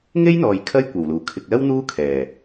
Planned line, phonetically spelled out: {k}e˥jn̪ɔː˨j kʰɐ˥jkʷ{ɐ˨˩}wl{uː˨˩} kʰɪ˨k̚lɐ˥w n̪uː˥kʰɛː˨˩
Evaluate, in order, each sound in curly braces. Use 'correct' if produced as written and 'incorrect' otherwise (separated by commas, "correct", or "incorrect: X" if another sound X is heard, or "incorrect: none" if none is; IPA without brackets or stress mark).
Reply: incorrect: ŋ, correct, correct